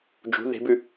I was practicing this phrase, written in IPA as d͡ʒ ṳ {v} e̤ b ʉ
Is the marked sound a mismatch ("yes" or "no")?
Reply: yes